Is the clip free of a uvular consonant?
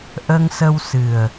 yes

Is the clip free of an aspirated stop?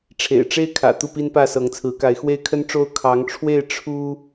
no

